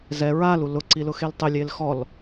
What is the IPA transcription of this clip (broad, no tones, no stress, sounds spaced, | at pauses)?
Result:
z ɛ ɹ a l u l ʊ ǀ i l ʊ x e l tˤ ɪ lʲ e l x ɔ l